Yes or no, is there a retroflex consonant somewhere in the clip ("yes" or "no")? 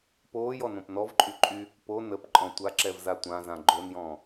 no